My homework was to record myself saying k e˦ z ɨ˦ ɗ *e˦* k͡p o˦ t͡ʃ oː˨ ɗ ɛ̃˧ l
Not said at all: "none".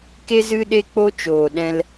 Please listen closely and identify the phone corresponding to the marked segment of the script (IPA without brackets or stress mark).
e˦